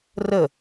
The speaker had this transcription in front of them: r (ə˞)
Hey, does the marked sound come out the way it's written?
no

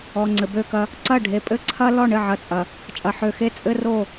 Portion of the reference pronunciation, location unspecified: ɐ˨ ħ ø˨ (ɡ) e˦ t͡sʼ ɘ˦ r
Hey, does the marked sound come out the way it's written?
no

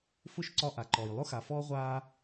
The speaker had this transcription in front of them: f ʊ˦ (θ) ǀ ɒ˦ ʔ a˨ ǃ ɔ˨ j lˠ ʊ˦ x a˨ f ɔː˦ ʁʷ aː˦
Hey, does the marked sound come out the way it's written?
no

